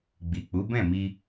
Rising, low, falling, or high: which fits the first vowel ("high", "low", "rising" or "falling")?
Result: low